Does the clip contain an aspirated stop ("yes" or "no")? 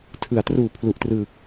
yes